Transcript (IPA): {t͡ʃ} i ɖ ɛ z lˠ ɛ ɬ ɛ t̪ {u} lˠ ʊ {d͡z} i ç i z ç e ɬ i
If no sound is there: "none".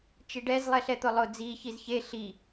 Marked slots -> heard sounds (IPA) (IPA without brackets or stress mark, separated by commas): t͡ʃ, ʊ, d͡z